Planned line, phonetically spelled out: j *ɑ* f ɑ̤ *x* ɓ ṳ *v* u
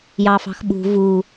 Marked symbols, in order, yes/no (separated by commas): yes, yes, yes